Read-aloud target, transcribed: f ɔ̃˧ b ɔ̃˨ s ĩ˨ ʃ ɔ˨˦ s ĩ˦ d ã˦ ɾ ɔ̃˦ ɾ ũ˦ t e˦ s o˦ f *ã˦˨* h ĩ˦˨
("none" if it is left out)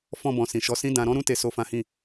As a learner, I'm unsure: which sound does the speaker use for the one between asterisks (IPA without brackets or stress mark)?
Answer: ã˦